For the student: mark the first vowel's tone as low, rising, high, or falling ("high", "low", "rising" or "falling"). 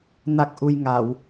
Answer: low